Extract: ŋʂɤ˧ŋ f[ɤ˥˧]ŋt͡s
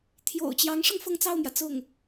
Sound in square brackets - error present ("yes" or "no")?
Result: no